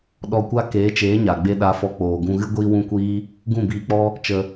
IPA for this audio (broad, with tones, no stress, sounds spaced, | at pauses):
ɗ ɔ˧ kʷ a˦ k eː˨˦ t͡ʃ eː˨˦ ɲ a˨ ɡ͡b e˧ ɗ a˨˦ f ɔ˨˦ k͡p oː˨ ɡ ũ˧ ɣ ɨ˦ ɡʷ iː˦ w ũ˦ kʷ iː˦ | ɡ ũ˦˨ b iː˧ k͡p ɔ˦ | t͡ʃ ə˧